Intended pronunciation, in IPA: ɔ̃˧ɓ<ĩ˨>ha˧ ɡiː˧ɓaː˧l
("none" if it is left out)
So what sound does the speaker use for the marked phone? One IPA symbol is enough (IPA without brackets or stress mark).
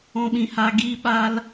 ĩ˨